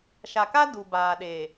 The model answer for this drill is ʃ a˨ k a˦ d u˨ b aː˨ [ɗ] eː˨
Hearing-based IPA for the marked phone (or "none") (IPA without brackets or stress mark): ɗ